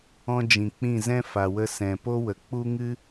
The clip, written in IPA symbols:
ɔ̃˦ d͡ʒ ĩ˨ k͡p ĩ˦˨ z ɛ̃˦ f a˨ w ə˧ s ɛ̃˨ p o˦ w ə˨ k͡p u˦ ŋ ɨ˦

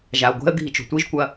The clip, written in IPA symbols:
ʒ a ə̯ ɡʷ ɛ̤ ə̯ ɡʱ i t͡ʃ o̤ tʷ i ʒ kʷ ɐ

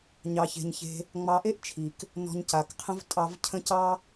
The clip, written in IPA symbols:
ɲ ɑ˨ ç e̤˨ ɲ ç e̤˧ | ŋ͡m ɑ˧ ʔ e˦ ʔ t͡ʃʰ i˨ k | n ɔ̤˧ ɲ c a˨ k qʰ ə̃˦ v tʼ ɑ˧ v cʰ ə̃˦ c ɑ˦

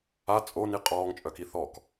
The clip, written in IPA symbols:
a t͡sʼ o n i qʼ ɔː ŋ t͡ʃʼ œ k i θ ɔ k

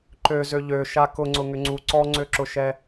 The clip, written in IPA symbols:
ǃ ø z ø ʎ ø ʃ a k ʊ ŋ͡ǀ ʊ ŋ ʏ ŋ͡ǀ u ǀ ɔ ŋ͡ǀ ø ǁ ʊ ʃ ɛ

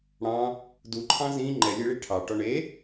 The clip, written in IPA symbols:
ɽ ɑ̃ | d u ǃʰ ɑ̃ z ĩ ŋ͡ǃ ɛ lʲ e ɭ i ʈʰ ɑ ʈ ɔ ɳ e

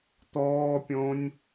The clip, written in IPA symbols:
t̪ ɔː pʲ õ nʲ

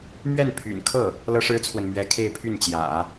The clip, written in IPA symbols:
m ɥ ɛ˥˩ n pʰ y̰˨˩ n kʰ ɤ˥˩ | l ɤ˥ ʂ ɻ̩˥ t͡sʰ w ə˨ n m ɥ ɛ˧˥ kʰ e˥˧ ɪ̯ pʰ y˥˩ n t͡ɕ j ä̰˨˩˦

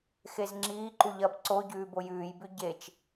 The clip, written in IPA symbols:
x e z ŋ͡ǁ iː ǃ u ʎ ɐː b ǀ o ɟ ʉː b o j ʉː j b ʉ ɟ e t͡ʃ

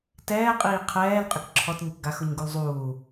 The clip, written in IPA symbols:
t ɛː qʼ iː qʰ ɛː l qʼ ɪ k ǁʰ ɔ t ɲ ɪ k ɡ a x ʊ ɲ ɡ u l zˤ uː

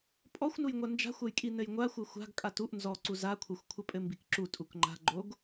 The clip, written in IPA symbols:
pʼ ɔ xʷ n u j ŋʷ a n d͡ʒ a̤ xʷ ɐ j kʼ i n ɘ j ŋʷ a xʷ ɘ xʷ a̤ ɡ kʼ a t u ʔ n z ɔ ǀ u z a kʷʰ ɘ xʷ kʷʰ ɘ pʼ ɘ m b i k ǁ u tʼ u k ŋ͡ǃ a̤ ɡ͡ǃ o ɡ

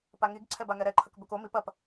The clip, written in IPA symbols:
p a ŋ i ɡ ǀʰ ɛ b a ŋ ɛ ɾ ɛ ǃʰ ɐ k b ɵ k o m i p ɐ p

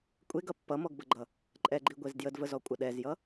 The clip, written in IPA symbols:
kʷʼ e ɡ ʌ pː ʌ m ɔ ɡ b ə ɡ͡ǃ ʌ | ǃʼ ɛ ɡ͡ǃ i ɡʷ e z d j ə d v ə z ɔ kʷʼ ə ɗ ɛ z j ʌ

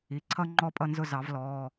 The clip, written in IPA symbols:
i˩˧˩ ǀʰ ʌ˥ ŋ͡ǃ ɔ˥ pʼ ʌ˥˧ n z ʊ˥˧ z ɑ˨˩˦ v l ɔː˩˧˩

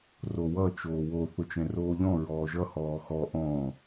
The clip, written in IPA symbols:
r o w ʌ t͡ʃ oː w o θ ʊ t͡ʃ ɛ̃ r oː ʎ ɔ̃ ɹ ɔː ʒ ʌ h ɔː x ɔ ʔ ɔ̃

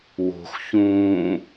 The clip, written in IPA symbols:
w o̤ x ç ũː

